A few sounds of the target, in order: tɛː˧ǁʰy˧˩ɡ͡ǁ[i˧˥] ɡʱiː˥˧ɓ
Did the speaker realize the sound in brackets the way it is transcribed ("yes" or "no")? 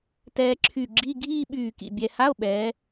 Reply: no